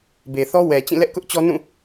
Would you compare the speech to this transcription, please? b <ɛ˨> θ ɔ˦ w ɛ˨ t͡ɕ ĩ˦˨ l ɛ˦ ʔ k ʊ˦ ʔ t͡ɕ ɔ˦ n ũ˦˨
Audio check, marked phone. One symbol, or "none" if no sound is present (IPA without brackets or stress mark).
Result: e˨